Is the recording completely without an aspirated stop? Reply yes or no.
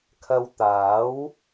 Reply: no